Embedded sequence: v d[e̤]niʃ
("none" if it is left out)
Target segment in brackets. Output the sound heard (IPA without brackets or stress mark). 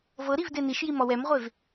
e